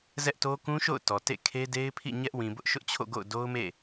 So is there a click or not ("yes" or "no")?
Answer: no